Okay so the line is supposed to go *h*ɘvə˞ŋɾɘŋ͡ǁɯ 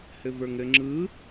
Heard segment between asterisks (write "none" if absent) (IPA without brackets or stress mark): h